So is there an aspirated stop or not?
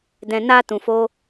no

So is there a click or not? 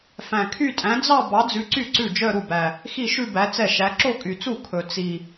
yes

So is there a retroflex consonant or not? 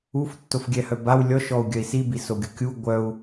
no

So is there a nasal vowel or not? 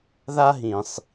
yes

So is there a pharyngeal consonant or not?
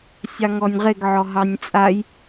yes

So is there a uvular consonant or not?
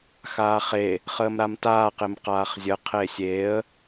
yes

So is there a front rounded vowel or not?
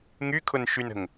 yes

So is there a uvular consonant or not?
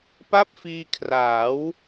no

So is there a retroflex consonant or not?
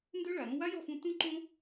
yes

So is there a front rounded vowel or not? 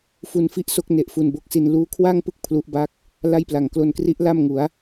no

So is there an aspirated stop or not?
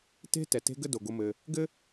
no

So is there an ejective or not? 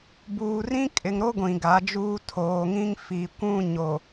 yes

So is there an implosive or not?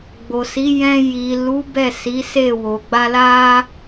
no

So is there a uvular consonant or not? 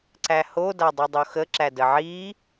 no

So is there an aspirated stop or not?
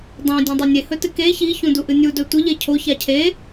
yes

